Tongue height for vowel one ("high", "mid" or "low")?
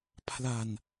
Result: low